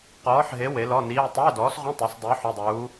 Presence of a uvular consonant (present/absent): present